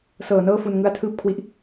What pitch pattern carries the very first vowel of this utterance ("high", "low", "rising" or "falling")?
low